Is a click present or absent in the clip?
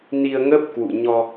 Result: absent